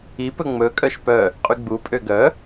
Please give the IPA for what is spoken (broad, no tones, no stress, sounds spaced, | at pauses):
i p ɵ ŋ͡m ɵ kʼ œ ʃ p œ | qʼ y ɡ͡b u pʼ ø ɡ œ